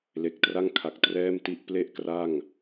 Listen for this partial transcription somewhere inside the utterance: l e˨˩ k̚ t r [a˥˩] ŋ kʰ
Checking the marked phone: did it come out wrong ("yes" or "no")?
no